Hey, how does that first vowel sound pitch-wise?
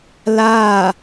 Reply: falling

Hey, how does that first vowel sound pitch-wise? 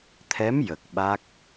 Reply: rising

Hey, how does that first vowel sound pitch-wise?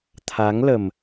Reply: rising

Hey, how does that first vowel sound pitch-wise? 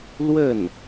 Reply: falling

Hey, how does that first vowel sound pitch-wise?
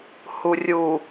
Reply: low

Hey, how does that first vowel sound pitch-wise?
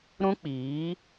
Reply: high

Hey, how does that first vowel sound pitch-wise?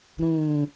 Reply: low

